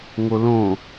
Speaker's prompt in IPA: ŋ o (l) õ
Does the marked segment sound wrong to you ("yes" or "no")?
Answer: no